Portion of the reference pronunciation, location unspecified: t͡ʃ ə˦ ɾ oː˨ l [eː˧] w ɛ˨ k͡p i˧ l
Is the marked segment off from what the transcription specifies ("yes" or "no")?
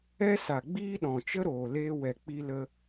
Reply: no